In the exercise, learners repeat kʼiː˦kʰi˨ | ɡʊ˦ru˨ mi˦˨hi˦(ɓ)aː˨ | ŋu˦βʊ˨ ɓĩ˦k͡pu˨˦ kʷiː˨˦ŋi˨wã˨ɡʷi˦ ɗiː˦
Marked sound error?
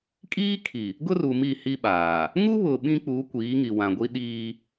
no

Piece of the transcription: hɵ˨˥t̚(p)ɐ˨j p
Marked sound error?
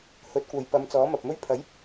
yes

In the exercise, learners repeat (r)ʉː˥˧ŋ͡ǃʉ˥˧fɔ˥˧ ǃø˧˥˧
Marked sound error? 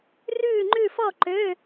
no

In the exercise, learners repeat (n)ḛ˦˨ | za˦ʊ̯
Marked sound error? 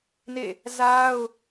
no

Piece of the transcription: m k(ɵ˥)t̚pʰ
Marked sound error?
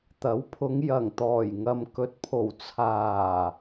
yes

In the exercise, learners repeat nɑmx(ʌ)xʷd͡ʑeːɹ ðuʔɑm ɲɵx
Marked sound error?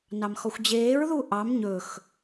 yes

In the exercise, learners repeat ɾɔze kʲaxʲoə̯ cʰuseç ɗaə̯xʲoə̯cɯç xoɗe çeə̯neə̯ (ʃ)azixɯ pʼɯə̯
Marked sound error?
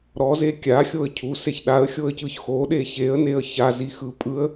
yes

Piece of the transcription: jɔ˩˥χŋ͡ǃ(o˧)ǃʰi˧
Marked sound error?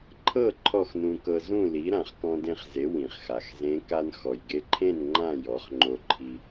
no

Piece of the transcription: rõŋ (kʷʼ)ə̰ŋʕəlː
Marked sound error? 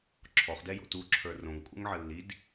no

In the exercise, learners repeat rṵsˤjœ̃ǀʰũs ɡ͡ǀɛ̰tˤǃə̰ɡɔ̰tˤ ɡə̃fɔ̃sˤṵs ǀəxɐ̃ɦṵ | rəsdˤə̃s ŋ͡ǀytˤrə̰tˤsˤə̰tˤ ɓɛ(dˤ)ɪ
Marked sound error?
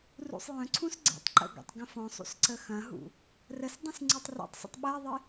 yes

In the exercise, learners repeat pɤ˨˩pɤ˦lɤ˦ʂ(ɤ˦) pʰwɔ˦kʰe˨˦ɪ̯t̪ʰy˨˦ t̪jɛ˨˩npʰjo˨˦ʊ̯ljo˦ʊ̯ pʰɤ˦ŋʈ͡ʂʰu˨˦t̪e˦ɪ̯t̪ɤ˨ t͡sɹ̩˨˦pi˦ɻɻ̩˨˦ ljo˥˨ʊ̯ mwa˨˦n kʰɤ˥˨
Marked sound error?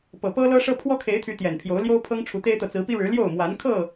no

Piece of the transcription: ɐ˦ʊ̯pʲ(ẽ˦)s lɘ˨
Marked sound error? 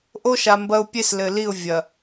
yes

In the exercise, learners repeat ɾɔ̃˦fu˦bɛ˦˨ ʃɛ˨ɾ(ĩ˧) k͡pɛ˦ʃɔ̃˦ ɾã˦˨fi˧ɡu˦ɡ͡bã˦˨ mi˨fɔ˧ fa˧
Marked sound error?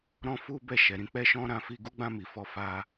no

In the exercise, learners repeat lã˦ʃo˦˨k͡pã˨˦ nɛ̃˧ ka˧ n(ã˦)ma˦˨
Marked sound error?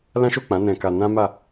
no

